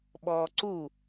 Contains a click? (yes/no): yes